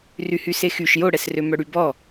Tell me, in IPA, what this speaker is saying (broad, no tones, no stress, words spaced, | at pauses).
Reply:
ryhysexyʃ joɽɛsrø mœɽybɔ